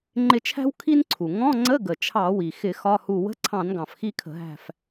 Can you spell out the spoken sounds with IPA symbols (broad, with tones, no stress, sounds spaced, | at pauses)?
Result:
ŋ͡ǃ ɪ˦˨ t͡ʃʰ æ̤˥ w kʰ i˥ n ǀʰ u˩ ŋ ɔ̃˧˥˧ ŋ͡ǀ ə˧˥˧ ɡ ə˩ t͡ʃʰ ɑ˧˩˧ w i˩ x ɪ˧˩˧ x ɒ˧˥˧ h u˦˨ w ə̤˧˥˧ ǀʰ ɑ̃˧˩˧ n ɡ ɑ̃˩ f x i˦˨ kʰ ə̤˧˩˧ ɦ æ̤˦˨ f